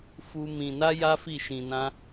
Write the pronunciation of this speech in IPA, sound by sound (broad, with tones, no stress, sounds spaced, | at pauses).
f u˦ m ĩ˧ n a˦ j a˦ f i˦˨ ʃ ĩ˧ n ã˦